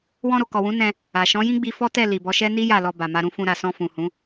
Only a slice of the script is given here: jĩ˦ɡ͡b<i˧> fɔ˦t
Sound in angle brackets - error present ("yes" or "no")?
no